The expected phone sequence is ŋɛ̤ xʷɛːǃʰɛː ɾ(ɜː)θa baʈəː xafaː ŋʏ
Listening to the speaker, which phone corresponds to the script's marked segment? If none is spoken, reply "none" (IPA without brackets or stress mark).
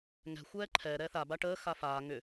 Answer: ɛː